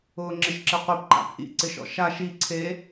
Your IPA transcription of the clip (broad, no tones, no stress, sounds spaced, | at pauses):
ʊː ŋ͡ǁ ɪ ʃ ǁ ɪ qʷ e p ǃ a̰ p ʔ ḭ ǀ ɪ ʃ ɔ̰ ʃ a ʃ i ǀʰ e